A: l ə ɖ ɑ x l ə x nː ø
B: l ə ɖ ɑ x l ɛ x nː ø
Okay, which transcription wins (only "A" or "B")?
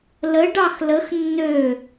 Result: A